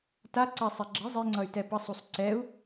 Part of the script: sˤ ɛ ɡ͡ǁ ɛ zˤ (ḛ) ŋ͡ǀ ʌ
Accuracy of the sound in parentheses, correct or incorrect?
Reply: incorrect